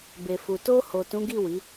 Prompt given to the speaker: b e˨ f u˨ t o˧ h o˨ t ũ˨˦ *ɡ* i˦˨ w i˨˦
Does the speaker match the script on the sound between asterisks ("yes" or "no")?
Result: yes